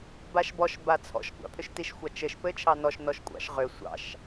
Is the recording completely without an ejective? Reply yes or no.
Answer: no